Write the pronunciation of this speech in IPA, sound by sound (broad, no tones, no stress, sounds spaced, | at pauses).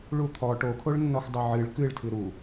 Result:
ɭ u t̪ʰ ɔ ʈ o kʰ o ɭ nː ɔ x dˤ o ʕ ɨ ɭ k ɨ ɭ tʰ ɨ ɾ u